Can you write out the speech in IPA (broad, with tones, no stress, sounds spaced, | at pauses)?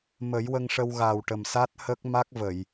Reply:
m ə˨˩˦ j w ə˧ ŋ ʂ ə˧ w ɣ a˨˩ w ʈ ə˨˩ m s a˦˥ t̚ h ə˦˥ k̚ m a˦˥ k̚ v ə˨˩˨ j